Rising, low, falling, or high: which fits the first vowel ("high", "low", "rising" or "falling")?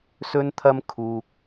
high